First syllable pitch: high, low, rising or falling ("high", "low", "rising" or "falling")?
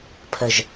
low